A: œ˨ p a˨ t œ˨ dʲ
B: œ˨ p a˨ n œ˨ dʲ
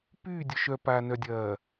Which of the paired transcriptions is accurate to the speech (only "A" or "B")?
B